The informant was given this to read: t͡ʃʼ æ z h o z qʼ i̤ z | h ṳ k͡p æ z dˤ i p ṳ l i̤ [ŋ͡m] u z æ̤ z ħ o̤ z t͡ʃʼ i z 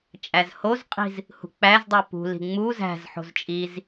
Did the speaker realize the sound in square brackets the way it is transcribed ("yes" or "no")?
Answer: yes